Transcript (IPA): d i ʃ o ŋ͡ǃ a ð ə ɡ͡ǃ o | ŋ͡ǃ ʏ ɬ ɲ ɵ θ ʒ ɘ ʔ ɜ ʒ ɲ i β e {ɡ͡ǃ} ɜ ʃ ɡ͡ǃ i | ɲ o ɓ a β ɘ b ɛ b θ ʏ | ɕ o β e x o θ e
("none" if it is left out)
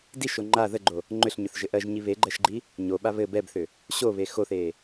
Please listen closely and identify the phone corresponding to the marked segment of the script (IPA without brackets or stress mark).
ɡ͡ǃ